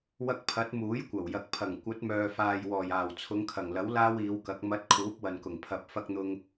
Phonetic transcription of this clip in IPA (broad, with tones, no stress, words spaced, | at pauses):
wɐ˧k̚pʰɐ˨˥t̚ muː˨˥jkʷɐ˨˩wjɐ˨k̚ pʰɐ˨˩ŋ kʷɐ˨˥t̚mœː˨faː˨j wɔː˨˩jaː˨˩wt͡sʰʊ˨˧ŋ kʰɐ˨˩ŋlɐ˨˥w laː˥wiː˨˧wkɐ˨˥k̚ mɐ˨˥t̚ kʰuː˨˥p̚wɐ˨nkʊ˨˩ŋ pʰɐ˨p̚ fɐ˧k̚n̪ʊ˧ŋ